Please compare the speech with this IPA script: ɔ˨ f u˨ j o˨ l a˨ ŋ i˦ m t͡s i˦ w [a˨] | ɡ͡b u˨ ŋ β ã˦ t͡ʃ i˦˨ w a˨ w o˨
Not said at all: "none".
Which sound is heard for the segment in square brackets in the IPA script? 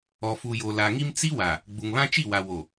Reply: a˨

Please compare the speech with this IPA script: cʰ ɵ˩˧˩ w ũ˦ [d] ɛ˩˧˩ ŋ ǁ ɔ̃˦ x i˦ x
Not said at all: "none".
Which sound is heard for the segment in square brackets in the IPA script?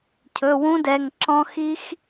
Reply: d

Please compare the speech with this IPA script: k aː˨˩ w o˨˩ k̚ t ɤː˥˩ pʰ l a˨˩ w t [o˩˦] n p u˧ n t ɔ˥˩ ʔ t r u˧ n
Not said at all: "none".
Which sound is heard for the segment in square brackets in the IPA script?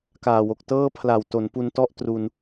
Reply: o˩˦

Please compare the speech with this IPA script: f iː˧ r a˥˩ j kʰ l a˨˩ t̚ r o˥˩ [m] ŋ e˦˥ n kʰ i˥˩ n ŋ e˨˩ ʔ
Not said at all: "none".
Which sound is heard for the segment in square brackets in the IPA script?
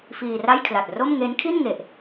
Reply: m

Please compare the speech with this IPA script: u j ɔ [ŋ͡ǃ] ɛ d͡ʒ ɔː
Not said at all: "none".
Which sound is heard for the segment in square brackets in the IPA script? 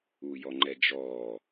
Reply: ŋ͡ǃ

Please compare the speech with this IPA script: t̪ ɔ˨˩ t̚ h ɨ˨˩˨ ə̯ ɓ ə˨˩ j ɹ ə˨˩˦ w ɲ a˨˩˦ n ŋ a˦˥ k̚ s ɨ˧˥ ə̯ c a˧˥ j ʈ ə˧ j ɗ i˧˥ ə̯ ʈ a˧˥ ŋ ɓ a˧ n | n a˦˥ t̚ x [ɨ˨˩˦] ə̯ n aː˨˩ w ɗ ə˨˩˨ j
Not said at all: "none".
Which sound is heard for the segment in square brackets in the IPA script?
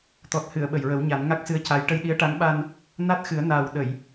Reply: ɨ˨˩˦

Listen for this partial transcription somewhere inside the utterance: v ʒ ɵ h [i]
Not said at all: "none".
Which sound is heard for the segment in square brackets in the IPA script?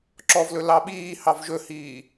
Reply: iː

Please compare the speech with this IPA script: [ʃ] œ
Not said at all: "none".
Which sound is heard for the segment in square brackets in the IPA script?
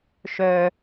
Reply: ʃ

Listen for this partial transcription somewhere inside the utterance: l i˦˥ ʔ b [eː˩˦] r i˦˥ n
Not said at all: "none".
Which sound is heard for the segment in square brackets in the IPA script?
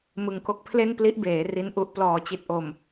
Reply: eː˩˦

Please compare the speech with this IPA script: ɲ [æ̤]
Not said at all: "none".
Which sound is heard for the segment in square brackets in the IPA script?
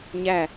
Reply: æ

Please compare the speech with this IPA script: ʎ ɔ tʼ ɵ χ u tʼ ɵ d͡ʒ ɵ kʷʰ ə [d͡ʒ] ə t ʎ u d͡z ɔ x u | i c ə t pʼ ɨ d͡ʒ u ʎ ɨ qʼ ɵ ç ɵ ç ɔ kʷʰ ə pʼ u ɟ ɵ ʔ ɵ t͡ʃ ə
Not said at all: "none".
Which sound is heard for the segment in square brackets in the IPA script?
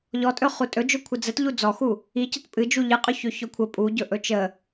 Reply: d͡z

